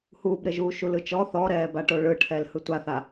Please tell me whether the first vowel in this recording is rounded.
yes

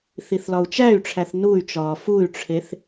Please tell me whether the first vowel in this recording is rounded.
no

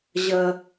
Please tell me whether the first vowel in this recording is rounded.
no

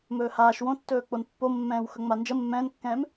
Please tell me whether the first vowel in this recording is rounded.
yes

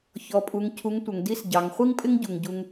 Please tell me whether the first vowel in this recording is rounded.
yes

